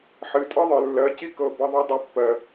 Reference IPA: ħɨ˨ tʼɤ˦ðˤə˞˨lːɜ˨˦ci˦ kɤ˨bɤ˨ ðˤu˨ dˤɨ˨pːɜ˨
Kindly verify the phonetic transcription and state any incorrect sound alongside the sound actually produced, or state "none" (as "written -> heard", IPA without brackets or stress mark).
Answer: none